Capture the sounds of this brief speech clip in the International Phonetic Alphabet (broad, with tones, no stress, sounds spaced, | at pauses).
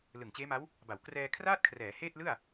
l ɯ˨˩ ŋ t͡ɕ eː˦˥ m a˦˥ w | b a˩˦ w k r ɛː˧ kʰ r aː˥˩ t̚ kʰ r ɛː˩˦ h eː˥˩ t̚ l ɯ˥˩ a̯